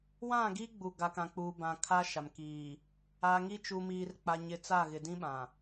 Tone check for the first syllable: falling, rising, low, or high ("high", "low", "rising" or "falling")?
falling